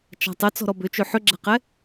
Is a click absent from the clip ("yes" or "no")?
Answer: no